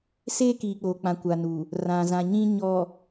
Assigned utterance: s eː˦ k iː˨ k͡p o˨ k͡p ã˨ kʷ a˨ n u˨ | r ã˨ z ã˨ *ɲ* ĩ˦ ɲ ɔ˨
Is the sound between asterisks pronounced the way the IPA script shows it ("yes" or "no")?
yes